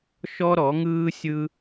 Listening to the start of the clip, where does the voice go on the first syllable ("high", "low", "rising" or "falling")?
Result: high